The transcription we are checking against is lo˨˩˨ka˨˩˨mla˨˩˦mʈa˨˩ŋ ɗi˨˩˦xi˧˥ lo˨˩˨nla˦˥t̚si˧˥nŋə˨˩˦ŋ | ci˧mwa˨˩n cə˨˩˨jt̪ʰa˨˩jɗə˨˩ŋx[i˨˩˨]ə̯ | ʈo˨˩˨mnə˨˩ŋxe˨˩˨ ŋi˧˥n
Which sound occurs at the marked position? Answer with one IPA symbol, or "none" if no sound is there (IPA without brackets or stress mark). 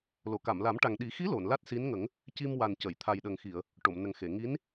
i˨˩˨